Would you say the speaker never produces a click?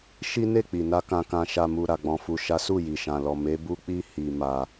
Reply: yes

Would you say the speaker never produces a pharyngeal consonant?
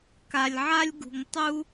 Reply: no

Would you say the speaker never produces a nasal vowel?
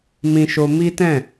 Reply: no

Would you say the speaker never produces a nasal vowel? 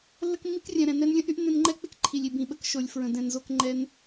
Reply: no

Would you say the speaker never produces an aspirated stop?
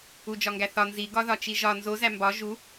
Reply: yes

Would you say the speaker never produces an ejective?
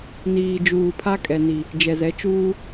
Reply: no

